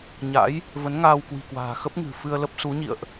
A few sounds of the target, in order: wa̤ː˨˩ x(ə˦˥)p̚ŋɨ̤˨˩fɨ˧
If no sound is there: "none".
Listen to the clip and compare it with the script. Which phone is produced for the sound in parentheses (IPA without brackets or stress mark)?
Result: ə˦˥